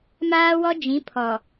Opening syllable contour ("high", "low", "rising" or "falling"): high